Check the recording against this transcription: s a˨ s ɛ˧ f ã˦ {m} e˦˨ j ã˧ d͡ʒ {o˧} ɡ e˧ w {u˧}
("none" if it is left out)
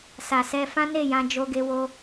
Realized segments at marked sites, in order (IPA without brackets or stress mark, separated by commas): n, o˧, o˧